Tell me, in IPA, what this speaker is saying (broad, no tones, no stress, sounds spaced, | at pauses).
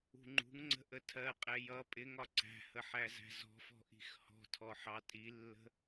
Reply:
ṳ ŋ͡ǃ ṳ ŋ ŋ͡ǀ ə̤ ʔ ə tʰ ɜ qʼ ɛ j ʌ pʼ ɪ ŋ ɒ ǀ æ̤ h ə ħ æ z æ̤ z ɔ̤ f ɔ̤ ʔ i̤ x h ɔ̤ tʰ ɔ ħ ɑ tʼ i lː ə̤